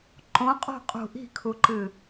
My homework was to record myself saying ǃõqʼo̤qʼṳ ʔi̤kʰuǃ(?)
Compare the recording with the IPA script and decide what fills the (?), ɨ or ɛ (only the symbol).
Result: ɨ